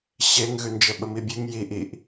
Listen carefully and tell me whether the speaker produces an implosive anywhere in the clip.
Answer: yes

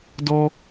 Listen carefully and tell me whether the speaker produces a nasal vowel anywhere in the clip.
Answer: no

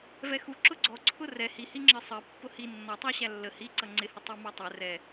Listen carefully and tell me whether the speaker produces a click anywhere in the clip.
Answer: yes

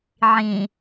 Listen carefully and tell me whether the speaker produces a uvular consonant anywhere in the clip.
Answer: no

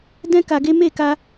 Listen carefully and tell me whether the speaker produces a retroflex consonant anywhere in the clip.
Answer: no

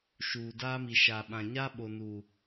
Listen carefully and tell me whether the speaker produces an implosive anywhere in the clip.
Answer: yes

